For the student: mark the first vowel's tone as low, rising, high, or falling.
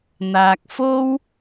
high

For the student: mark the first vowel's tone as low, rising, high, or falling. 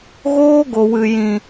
high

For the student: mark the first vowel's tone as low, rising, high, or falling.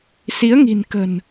rising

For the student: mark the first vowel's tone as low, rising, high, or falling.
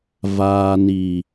low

